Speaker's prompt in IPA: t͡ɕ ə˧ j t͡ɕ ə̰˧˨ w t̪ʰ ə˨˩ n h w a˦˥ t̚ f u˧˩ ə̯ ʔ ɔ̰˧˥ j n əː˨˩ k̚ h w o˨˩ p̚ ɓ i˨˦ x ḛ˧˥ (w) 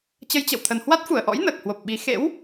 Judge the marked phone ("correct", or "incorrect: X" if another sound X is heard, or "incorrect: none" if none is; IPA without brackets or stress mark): correct